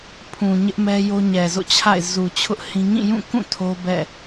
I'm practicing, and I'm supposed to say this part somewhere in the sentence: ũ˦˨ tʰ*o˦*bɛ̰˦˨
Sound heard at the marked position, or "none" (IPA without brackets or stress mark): o˦